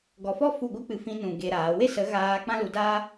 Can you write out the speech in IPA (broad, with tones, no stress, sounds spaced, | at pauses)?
ɡ ɔ˨ f ɔ˦ f u˦˨ ɡʷ ɨ˦ k͡p ɨ˧ f ĩ˧ n ũ˨ ɡ e˧ ɾ aː˨˦ w e˦ s ə˨˦ ɣ aː˧ k͡p ã˦ l u˧ d aː˦